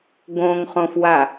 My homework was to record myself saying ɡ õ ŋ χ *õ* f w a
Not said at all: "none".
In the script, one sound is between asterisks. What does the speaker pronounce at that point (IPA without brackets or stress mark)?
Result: õ